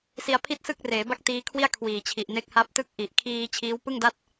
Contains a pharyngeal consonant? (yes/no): no